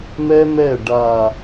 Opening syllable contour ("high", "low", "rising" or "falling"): high